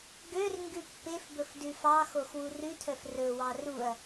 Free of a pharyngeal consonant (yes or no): yes